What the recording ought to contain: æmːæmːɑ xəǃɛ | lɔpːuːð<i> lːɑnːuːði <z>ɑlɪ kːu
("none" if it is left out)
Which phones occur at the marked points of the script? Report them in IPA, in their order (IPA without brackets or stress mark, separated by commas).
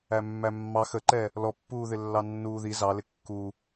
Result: ɪ, z